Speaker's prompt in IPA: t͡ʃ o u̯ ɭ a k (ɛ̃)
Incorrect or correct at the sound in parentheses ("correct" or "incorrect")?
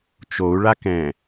correct